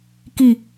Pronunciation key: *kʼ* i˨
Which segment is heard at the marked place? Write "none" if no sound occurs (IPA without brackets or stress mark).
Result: k